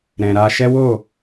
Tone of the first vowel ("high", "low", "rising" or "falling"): low